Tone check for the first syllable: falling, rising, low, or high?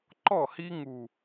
falling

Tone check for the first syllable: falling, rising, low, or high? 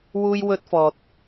high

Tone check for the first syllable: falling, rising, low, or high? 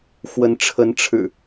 rising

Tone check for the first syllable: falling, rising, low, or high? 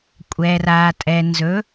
low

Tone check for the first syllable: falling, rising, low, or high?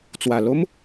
low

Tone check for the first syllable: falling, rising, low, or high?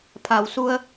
low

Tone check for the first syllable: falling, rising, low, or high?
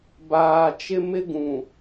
low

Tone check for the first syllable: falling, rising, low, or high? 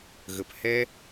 low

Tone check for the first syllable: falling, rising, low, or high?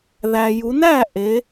low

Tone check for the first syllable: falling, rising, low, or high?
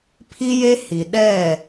high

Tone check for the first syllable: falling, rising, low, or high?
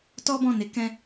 high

